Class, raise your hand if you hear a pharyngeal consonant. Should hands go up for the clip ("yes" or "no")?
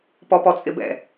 no